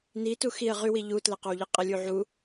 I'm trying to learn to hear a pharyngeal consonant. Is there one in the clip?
yes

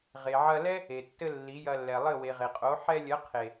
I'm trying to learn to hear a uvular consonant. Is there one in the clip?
yes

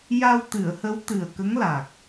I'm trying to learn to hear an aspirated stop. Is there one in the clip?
no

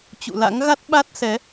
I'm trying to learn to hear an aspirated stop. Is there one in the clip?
no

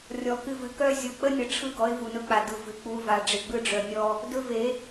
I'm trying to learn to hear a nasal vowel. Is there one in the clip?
no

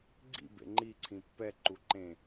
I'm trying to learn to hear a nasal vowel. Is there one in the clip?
yes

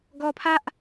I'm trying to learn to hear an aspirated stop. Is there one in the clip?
yes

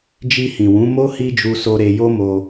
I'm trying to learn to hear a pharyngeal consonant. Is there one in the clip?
no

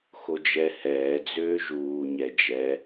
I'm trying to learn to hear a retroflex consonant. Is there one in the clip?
no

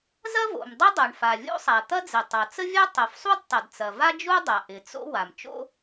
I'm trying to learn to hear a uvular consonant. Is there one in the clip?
no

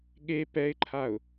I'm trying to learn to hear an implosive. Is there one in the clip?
yes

